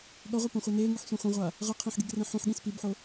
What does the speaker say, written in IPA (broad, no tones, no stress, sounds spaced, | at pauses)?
ɠ ʌ ʁʷ a p õ χʷ ɛ n e ŋ ɯ ħ sʷ ẽ χʷ ẽ ʁʷ a | ʁ ɯ qʰ ĩ ħ ɡ i ɡ r ẽ ħ ũ ħ ɠ ĩ s p i b ħ o